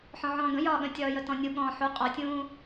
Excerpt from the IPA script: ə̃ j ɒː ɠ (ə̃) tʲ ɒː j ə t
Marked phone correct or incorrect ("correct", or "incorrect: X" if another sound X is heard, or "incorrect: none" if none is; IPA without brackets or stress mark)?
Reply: correct